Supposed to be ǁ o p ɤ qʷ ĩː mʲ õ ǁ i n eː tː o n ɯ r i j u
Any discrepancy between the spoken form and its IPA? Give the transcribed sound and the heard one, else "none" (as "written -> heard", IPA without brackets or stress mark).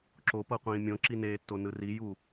none